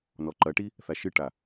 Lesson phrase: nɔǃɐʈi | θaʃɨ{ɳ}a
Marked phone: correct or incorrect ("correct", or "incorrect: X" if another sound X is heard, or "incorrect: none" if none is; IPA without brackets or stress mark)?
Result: incorrect: ʈ